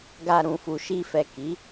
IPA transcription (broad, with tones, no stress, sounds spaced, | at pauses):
ɡ a˧ ɾ ũ˨ f u˨ ʃ i˧ f ɛ˨ k i˨˦